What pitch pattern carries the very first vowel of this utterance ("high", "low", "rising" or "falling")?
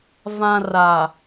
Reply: low